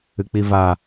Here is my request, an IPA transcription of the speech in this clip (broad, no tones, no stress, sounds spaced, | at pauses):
ɨ k͡p i v a